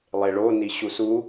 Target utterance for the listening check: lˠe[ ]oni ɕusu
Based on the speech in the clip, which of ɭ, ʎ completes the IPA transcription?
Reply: ɭ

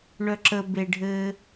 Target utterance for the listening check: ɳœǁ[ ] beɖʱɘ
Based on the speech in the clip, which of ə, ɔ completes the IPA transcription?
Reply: ə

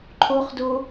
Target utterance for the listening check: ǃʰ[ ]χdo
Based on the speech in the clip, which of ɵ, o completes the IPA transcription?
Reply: o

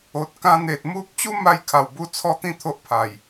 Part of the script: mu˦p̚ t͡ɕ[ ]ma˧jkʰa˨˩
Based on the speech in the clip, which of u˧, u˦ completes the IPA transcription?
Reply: u˦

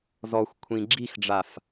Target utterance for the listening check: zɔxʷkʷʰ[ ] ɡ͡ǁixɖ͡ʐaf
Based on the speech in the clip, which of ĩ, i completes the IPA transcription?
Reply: ĩ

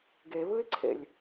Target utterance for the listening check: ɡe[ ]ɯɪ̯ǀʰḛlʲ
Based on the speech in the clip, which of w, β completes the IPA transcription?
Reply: β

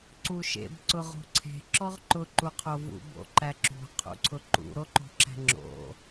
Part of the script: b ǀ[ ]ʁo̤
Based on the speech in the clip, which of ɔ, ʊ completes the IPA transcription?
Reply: ʊ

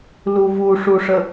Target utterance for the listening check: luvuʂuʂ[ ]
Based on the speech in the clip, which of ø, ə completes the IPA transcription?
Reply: ə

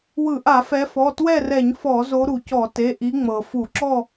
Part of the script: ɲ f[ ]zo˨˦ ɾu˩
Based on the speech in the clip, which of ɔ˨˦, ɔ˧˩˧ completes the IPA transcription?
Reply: ɔ˧˩˧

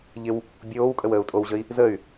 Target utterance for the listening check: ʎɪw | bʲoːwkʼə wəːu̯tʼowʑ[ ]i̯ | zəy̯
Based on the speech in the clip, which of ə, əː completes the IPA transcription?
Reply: ə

